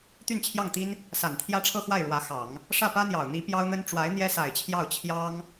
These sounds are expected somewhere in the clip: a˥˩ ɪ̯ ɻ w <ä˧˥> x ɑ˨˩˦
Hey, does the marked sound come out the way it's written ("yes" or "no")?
yes